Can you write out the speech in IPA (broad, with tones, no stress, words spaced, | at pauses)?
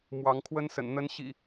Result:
mwɑ˨˦ŋkʰwə˦nsə̰˨˩n n̪ə˨˦n ɕḭ˨˩